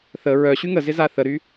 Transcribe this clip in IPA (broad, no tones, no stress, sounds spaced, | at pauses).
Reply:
θ ə ɹ œ ɕ y ŋ ə z ɪ z a θ ə ɾ y